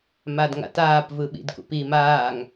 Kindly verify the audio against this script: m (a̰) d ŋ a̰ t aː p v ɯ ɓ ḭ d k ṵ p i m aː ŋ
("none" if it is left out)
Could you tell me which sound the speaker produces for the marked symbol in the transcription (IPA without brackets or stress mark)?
a